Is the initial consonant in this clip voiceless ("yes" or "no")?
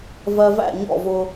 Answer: no